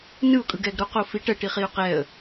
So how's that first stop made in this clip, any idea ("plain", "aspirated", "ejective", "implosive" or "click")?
ejective